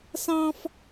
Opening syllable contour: high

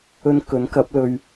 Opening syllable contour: high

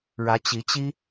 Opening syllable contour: rising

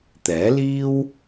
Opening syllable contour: rising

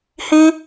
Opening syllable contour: high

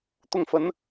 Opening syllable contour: falling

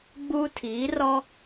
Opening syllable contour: high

